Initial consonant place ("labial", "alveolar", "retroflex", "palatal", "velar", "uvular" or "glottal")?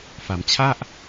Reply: labial